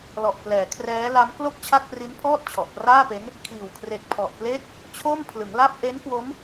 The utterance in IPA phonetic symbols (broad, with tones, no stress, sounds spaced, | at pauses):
l ɔ˨˩ ʔ p l ɛː˩˦ kʰ r ɛː˦˥ l a˦˥ m k l o˥˩ k̚ t͡ɕʰ a˥˩ k̚ p r i˦˥ n pʰ ɔː˥˩ t̚ t͡ɕʰ ɔ˨˩ ʔ p r aː˥˩ p e˦˥ n | kʰ iː˨˩ w kʰ r e˨˩ k̚ pʰ ɔ˨˩ ʔ p l e˦˥ k̚ | t͡ɕʰ o˥˩ m pʰ l ɯ˩˦ ŋ l a˥˩ p̚ ʔ e˦˥ n k w o˦˥ m